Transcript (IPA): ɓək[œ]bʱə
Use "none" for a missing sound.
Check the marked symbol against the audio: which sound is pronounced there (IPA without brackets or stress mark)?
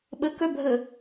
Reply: œ